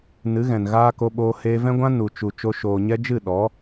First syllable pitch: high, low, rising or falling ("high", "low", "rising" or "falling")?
rising